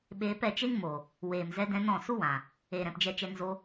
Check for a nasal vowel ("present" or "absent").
present